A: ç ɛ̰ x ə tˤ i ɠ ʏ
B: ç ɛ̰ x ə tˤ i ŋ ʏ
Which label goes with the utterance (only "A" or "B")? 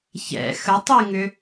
B